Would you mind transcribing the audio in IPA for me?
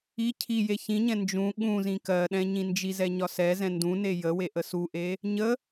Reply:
i cʰ i j e ç ĩ ɲ ɛ̃ n d͡ʒ ũ ɠ ũ z ĩ k ɜ ɗ ɛ̃ ɲ ĩ n d͡ʒ i z ɛ ɲ ɒ s ɛ z ɛ̃ n d ũ n e j ə w e ʔ ə s u ʔ e | ɲ ə

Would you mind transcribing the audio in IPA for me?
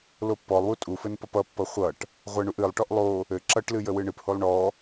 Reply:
l o pː ɔ lˠ w u tʼ u f ɘ n p ʌ p ʌ pː ʌ χʷ ʌ ʈ | ʁʷ ɛ ɳ u ʔ ɨ lˠ ʈ ɔ ʔ lˠ o | ɘ ǁ ʌ ʈ l ɨ j ə w ɨ ɳ ɨ p h o lˠ ɳ ɔ

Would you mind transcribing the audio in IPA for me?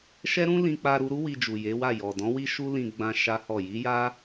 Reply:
ʃ ɛ˦ ɾ ũ˦ l ĩ˧ k͡p a˧ ɾ u˧ ɾ u˦ w i˧ d͡ʒ u˨ j e˨˦ w a˦˨ j ɔ˨ d ɔ̃˨˦ w i˦ ʃ u˦ l ĩ˧ ɡ͡b ã˧ ʃ a˦ h ɔ˦˨ j i˨˦ j a˦

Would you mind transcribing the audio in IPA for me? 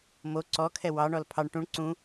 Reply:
m o ǀ ɔ kʰ ɛ w ɑ ɳ ɔ l pʰ ɑ ɳ ʈ ũ ɳ ǀ ũ

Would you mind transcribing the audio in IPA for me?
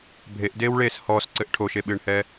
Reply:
bʱ e ʔ d eː w ɭ eː s h ɔː s ǀ ɘ ʔ ʈʰ o ʃ e ɓ ɨː ɳ h ɛː

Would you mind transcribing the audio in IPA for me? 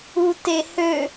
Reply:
u t e h ø

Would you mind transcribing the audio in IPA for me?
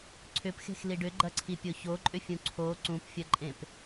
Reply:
ǀʰ ʏ p x e̤ x l i ɖ ʏ ɡ͡ǃ ɐ ǀʰ i pʲ o ç o ǃʼ ʏ fʲ ũ ǀʰ o ǀ ũ p fʲ ɐ ǃʼ ẽ p

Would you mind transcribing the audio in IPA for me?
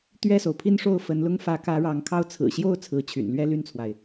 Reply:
t̪ ɥ ɛ˥˩ s o˩ ʊ̯ pʰ i˥˧ n ʂ o˥˩ ʊ̯ f ə˧˥ n l ʊ˥ ŋ f ä˧˥ k ä˧˥ ɻ ɑ˧˥ ŋ kʰ ɑ˥˩ ʊ̯ t͡sʰ ɹ̩˨˩ ɕ j o˥˩ ʊ̯ t͡sʰ ɹ̩˧˥ t͡ɕʰ y̰˨˩ n l ɥ ɛ˥˧ l y˥˩ n t͡sʰ w a˩ ɪ̯

